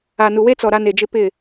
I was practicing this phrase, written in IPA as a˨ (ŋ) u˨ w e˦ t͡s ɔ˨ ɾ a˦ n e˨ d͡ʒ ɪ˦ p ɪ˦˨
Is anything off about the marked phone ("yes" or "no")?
yes